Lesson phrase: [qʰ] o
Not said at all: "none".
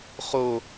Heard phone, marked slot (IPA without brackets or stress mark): χ